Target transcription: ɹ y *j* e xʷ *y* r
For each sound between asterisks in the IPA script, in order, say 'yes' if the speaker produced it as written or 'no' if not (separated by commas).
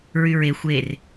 no, no